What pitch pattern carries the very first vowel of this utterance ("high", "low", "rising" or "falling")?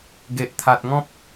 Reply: low